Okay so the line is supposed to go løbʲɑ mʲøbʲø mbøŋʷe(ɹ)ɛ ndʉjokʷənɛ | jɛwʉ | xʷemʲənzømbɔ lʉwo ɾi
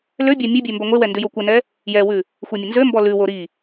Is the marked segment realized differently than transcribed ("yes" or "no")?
yes